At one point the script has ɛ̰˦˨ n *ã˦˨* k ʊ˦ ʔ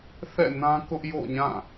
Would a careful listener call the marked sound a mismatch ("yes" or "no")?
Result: yes